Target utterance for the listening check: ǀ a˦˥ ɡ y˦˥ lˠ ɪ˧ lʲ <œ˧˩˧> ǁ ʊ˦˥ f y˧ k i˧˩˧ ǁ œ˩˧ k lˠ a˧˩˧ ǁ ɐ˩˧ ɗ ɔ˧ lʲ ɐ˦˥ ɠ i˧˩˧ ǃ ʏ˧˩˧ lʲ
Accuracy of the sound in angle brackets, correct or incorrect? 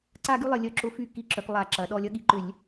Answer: incorrect